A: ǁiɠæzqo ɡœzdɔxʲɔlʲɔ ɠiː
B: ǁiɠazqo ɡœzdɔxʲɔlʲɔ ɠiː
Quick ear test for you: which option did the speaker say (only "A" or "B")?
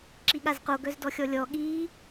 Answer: B